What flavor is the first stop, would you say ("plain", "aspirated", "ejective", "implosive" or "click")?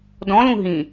plain